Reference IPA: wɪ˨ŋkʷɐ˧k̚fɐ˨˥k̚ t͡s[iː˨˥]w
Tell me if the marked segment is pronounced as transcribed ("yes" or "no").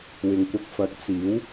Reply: yes